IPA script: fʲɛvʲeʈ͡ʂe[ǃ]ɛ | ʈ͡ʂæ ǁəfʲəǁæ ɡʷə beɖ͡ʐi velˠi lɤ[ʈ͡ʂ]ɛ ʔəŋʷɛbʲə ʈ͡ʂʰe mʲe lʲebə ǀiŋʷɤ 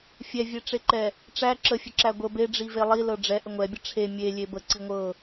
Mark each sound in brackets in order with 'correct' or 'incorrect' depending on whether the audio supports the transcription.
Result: correct, incorrect

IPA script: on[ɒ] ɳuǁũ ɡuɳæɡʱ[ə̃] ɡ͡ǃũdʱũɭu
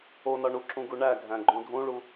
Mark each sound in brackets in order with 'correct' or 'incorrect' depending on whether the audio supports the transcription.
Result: correct, incorrect

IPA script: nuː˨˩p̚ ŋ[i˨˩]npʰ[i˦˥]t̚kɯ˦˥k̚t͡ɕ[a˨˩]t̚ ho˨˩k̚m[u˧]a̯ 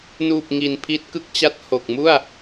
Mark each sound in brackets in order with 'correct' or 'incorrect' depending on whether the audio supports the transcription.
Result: correct, correct, incorrect, incorrect

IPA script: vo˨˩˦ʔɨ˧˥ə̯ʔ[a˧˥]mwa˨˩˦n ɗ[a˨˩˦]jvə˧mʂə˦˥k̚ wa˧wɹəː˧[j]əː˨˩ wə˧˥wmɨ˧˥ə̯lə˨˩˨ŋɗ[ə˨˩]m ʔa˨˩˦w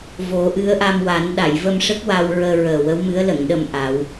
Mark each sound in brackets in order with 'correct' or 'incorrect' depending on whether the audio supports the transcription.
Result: incorrect, incorrect, incorrect, incorrect

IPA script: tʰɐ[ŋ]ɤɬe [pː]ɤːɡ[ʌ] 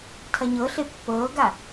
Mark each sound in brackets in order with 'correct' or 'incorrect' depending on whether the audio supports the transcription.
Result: incorrect, correct, incorrect

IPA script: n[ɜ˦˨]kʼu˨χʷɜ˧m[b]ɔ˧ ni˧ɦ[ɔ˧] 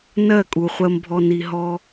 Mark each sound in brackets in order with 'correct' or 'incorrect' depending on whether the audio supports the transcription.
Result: correct, incorrect, incorrect

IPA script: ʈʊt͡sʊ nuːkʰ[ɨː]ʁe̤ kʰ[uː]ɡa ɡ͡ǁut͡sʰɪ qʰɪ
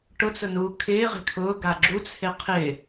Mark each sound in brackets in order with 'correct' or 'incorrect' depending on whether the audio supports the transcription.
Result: incorrect, incorrect

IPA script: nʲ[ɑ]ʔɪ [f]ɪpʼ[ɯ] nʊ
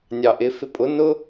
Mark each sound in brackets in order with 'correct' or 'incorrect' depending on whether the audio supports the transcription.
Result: correct, correct, incorrect

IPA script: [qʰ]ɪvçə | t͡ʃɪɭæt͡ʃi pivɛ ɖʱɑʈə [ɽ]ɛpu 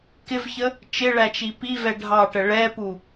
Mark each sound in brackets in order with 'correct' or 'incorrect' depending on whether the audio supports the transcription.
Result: incorrect, incorrect

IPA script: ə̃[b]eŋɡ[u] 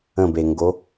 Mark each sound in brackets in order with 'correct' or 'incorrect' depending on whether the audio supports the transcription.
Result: correct, incorrect

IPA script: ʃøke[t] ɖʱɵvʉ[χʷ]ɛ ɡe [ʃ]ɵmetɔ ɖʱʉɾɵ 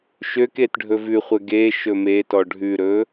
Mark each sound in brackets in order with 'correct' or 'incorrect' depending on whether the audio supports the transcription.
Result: correct, correct, correct

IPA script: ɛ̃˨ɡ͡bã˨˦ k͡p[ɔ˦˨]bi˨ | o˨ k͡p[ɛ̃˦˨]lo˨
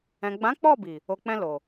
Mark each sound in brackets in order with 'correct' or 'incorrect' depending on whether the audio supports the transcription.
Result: correct, incorrect

